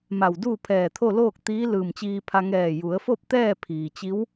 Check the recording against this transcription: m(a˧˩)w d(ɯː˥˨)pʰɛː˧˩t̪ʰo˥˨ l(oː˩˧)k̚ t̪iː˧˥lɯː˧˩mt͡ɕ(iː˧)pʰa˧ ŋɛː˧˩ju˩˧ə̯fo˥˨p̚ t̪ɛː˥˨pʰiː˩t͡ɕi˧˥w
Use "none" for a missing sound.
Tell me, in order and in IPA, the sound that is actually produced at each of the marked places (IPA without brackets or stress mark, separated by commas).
a˧˩, uː˥˨, oː˥˨, iː˧